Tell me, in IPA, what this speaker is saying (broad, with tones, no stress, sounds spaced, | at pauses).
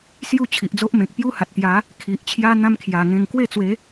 s j u˥˧ t͡ɕʰ i˨ ʔ d͡z o˦ ʔ m ẽ˨ k̚ p j u˦ h a˨ t̚ t̪ j a˨˦ | kʰ i˨ ʔ t͡ɕʰ j a˦ n̪ ã˦ m kʰ j a˨˩ ŋ ẽ˧ ŋ k w e˥˧ t͡s w e˨˦